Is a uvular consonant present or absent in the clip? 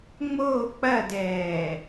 absent